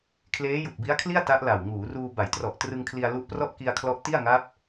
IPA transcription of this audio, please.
kʰleː˦˥ju˨˩k̚bi˦˥a̯kʰli˥˩a̯ ta˦˥ʔla˨˩w ŋuː˩˦ruː˧ ba˩˦jtrɔ˨˩ʔ trɯ˧ŋkʰli˧a̯ lu˦˥ʔprɔ˥˩ʔ ki˧a̯kʰlɔ˦˥ʔti˥˩a̯ ŋa˦˥p̚

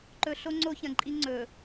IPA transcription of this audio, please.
ǃɵ˨ɬo˦ ŋ͡ǀo˦çɐ̃˨ǃʼi˦ŋ͡ǀɵ˨

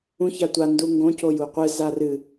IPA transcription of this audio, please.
ũç atʷa nduŋɡõ cojuqʷɨ zarɨ

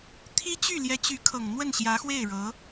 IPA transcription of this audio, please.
t̪ʰi˥t͡ɕy˥˩ ljɛ˧˥t͡ɕy˧˥kʰɤ˨˩ŋ n̪wə˥˩nɕjä˧˥xwe˥˩ɪ̯ɻɤ˧˥

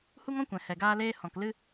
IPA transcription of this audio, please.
hu˦ŋɔ̃˦kʷɛ̃˨ hɛ˨ɡaː˧leː˧ hɔ̃˨klɨ˧

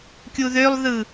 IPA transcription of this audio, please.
kʲuðølˠðɯ

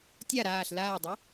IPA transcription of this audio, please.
tʲa ɾaːɬ laːdˤo

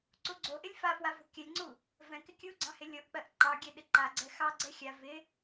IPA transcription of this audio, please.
ǀuɡ͡ǀoʔɪlʲ fafwa vo̤kʲɜlʲŋ͡ǀu | vɛ̃kɪ kʲuɡ͡ǀɑ̃ hɪlʲoʔk͡pɜʔ ǃɑɡʲɛ ɗɪǃaɡ͡ǀɛ xɑɡ͡ǀɛ xʲa vɪ

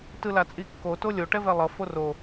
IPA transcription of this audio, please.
tɯlat͡sʼikːo tolʲo ʈɛvɛlˠʌ foro

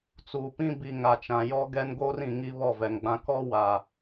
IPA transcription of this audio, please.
t͡suː˨pĩ˦ bi˨ ŋa˨t͡ʃã˨jɔ˦ ɡɛ˦n ɡoː˦rĩ˨ ŋi˦βɔ˦˨vɛ˨ŋɡ͡bã˦ kɔ˦ wa˨

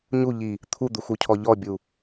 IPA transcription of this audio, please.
ɲuʎi | t̪ʰud̪uxucʰɔ ʎɔbʲu

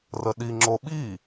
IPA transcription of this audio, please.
rəɗi ŋ͡ǁoɓi

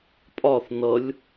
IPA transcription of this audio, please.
pʼɒθ nʌlʲ

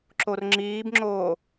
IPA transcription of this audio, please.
ǁorŋ͡ǁiːbŋ͡ǁoː

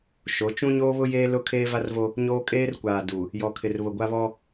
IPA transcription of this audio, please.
ʃo˨˦ t͡ʃũ˦ɲoː˦βʊ˦jeː˦ lʊ˦ kʰeː˦va˦rvo˦ | ɲoː˦ kʼeː˦rkʷaː˨ du˨ | jɔ˨kʰɪ˨r βʊ˨ɡʷa˦βɔ˦

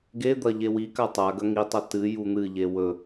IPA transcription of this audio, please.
ɡed̪ɐ ʎewika tˤa ɡɐŋitˤɐ tɨ jun̪ɨʎe wɵ

